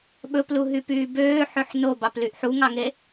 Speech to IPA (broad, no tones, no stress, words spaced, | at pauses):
ɓɵpluɦypyː bøːħøħ nobɑplyʔ ħuŋɑŋe